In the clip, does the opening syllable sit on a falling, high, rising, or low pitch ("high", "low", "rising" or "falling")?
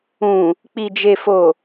low